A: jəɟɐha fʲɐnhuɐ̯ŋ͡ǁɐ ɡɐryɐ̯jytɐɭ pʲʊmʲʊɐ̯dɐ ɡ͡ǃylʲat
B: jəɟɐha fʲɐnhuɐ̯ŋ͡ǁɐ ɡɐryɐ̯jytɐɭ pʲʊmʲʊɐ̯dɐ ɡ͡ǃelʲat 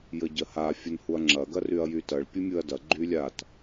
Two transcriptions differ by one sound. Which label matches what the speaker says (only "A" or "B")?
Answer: A